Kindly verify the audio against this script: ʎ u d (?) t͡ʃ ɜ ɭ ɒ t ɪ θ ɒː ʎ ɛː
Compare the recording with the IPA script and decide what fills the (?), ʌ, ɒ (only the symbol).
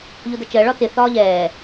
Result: ʌ